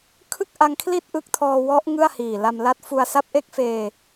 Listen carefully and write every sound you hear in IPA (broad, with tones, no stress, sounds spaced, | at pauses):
kʰ ɯ˥˩ k̚ ʔ a˧ ŋ kʰ l i˥˩ t̚ ʔ ɯ˦˥ k̚ tʰ ɔː˧ w ɔ˦˥ ʔ ŋ ɯ˥˩ a̯ h iː˨˩ l a˧ m l a˦˥ t̚ f u˧ a̯ s a˦˥ p̚ ʔ e˦˥ k̚ f eː˧